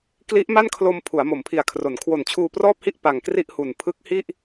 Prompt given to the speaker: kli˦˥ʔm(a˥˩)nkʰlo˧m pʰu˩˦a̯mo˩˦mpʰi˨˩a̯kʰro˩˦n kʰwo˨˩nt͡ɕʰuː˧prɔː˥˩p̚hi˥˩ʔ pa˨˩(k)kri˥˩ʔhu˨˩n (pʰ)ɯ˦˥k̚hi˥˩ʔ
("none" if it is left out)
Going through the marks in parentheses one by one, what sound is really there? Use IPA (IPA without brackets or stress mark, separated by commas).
a˥˩, ŋ, pʰ